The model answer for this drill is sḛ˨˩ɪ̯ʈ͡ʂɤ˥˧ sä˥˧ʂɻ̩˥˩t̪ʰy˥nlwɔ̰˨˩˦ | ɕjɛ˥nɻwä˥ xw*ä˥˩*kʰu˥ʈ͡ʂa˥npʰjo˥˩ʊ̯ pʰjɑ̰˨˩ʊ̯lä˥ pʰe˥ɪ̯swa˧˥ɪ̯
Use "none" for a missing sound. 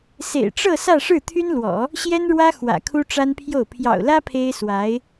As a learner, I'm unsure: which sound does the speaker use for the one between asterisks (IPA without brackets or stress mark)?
ä̰˨˩